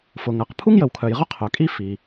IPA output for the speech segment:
fʊ˩ŋɜ˩q pʰu˥ŋjə˩wkʰœ˩jʁʊ˥ qʰœ˩kʼi˥ fi˩

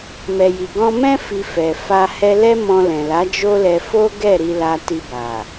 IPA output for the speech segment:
mɛ˨ji˨ɡɔ̃˧mɛ̃˦ fi˧fɛ˨ fa˧ hɛ˧lɛ˦ mɔ̃˧lɛ̃˨la˨˦ d͡ʒo˦lɛ˧ fo˦ɡɛ˦˨ ɾi˧la˧ti˧ ba˨

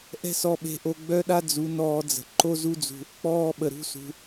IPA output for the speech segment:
ʔɛ̤˦sɔ˧ɓe̤˧ʔo˧ ɡ͡bœ˦ɗa˦ d͡zu˨˦nɔː˧d͡zə̤˨ ǃo˦zu˦d͡zṳ˧ | k͡pɔː˧ɓə˨ ɾṳ˦sṳ˧

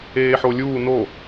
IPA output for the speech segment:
eːħolʲuː no

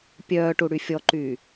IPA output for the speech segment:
pʲœːʈuɽy fʲɔǃyː

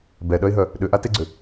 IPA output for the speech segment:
bɛɗœɪ̯ɦœ | ɗʏʔateɡ͡ǀʏ

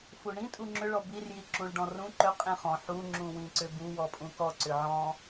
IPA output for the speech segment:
fuɳĩ tʼuŋ͡ǁʏ ɭɔbir jiǁũɭɖɔ̃rũ ǃʏ qʼĩχɔ̃ ħu ŋ͡ǁũwĩǀʏbu wɔpʼũkɔ ǀʏʕɔ̃

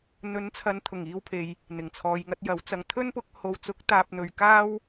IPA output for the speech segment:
n̪ɵ˨˥nt͡sʰɐ˨˧n t̪ʰʊ˨˩ŋiː˧wpʰe˨j | n̪ɪ˨˩ŋt͡sʰɔː˨jŋɐ˧t̚jɐ˨˥w t͡sɐ˨ŋt̪ʰɵ˥npʊ˨˥k̚ ho˨wt͡sʊ˨˥k̚ t̪aː˧p̚n̪ɵ˧ɥ kaː˥w

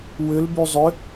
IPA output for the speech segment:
wʏlby zˤʏ

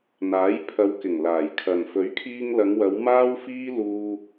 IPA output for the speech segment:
n̪aː˨˥j pʰɐ˨˧wkɪ˨˩ŋ laː˨˩jkʰɐ˨n fɵ˨˥ɥkʰiː˧ŋlɐ˨˧ŋwɐ˨˧w maː˥wfiː˥ luː˥

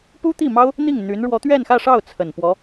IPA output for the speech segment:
pu˥t̪i˥˩mɑ˥ʊ̯ | n̪i˥˩ŋ n̪y˧˥n ɻwɔ˧˥t̪ɥɛ˥˧nxä˥˧ʂɑ˥˩ʊ̯ t͡sʰə˨˩npwɔ˧˥

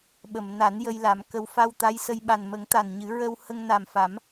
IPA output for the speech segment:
ɓə˨˩˨mna˨˩˦njə˧j la˨˩˦mkə˧w fa˧w t̪a˧˥jsə˧j ɓa˨˩nmə˨˩˦ŋ t̪a˨˩nɲɨ˨˩˦ ɹə˧w hə˧ŋna˨˩m fa˨˩˦m

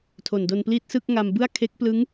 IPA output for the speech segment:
tʰo˨˩ndo˧npliː˥˩t̚ sɯ˥˩k̚ŋa˧mbɯ˥˩a̯ kʰe˦˥k̚plɯ˦˥ŋ

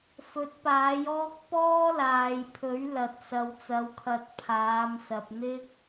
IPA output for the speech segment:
fɵ˨˥t̚paː˨˥jɔː˥k̚ pɔː˥laː˨jpʰɵ˨˥ɥ lɐ˨t̚ sɐ˨wt͡sɐ˨˧wkʰɐ˨˥t̚ pʰaː˨˧msɐ˨p̚n̪ɪ˥k̚

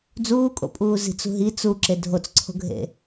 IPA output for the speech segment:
d͡zuːkʼo̰pʼuː zi̤t͡sṳɦi t͡su ǁedʱot͡sǀʰo̤ɡʱḛ

